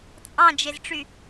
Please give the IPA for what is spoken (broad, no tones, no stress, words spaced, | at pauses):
t͡sʼɑ̃d͡ʒezʈ͡ʂy